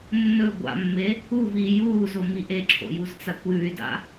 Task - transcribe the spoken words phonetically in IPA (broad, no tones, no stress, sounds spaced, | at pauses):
nː ɵ ɡʷ a̰ mː e | u v iː j uː z o m i ʔ e ǁʰ o̰ j u z t͡s a kʷ j ʉ y̯ d a̰